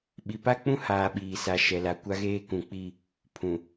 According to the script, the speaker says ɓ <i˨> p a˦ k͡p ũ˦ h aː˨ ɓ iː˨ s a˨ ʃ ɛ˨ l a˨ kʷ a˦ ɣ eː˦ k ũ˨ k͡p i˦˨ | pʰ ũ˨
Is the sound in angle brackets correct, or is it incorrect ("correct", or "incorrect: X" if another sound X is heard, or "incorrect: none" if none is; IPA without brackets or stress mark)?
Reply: correct